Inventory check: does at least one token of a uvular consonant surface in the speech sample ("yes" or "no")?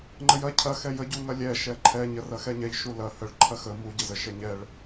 no